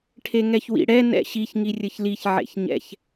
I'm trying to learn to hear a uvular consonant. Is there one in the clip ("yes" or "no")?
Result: no